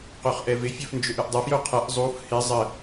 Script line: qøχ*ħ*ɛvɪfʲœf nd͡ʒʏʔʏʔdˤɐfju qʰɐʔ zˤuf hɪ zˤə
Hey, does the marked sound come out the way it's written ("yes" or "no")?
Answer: no